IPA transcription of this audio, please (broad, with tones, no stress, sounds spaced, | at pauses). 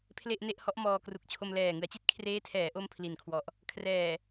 pʰ l e˥˩ ʔ n e˥˩ ʔ h ɔ˦˥ ʔ m ɔː˧ k r u˨˩ k̚ t͡ɕʰ o˧ m l ɛː˨˩ ŋ ɯ˩˦ a̯ t͡ɕ i˥˩ t̚ kʰ r eː˦˥ tʰ ɛː˩˦ ʔ o˥˩ m pʰ l i˨˩ n kʰ w ɔ˨˩ ʔ | kʰ r ɛː˨˩